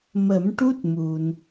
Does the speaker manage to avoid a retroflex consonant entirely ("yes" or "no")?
no